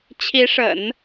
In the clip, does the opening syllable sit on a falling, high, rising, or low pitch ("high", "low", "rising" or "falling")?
rising